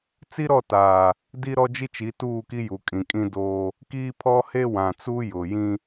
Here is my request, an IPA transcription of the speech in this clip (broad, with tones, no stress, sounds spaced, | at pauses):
t͡s i˦ ɾ ɔ˦˨ t aː˨ | d i˦ ɾ ɔ˦ d͡ʒ i˦ t͡ʃ i˨˦ t uː˦˨ k i˦ j u˨ kʼ ĩ˨ kʼ ĩ˦ d oː˦ | k iː˦ pʰ ɔ˦ h e˦ w ã˨ t͡s u˦ j ʊ˨ j ĩ˦